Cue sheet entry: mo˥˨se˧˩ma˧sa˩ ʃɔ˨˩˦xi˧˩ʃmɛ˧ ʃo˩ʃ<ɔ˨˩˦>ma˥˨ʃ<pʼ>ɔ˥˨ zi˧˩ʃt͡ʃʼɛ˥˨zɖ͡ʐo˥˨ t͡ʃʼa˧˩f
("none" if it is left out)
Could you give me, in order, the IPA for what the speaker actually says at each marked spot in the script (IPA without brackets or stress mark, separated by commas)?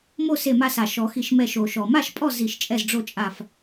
ɔ˩, pʼ